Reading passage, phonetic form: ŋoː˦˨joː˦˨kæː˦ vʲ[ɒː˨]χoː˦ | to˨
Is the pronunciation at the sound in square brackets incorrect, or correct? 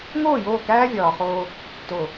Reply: correct